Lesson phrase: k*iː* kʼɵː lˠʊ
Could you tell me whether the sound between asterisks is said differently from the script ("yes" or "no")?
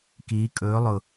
no